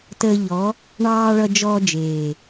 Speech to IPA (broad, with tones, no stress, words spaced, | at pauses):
təː˧ʎɔ˨˦ | ɳɑː˧ ɭʌ˧d͡ʒɔː˧d͡ʒeː˨